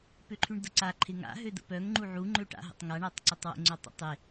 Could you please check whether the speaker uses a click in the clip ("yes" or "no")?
yes